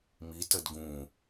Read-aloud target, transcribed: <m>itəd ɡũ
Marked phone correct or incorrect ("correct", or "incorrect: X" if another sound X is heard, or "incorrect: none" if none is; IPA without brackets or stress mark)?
correct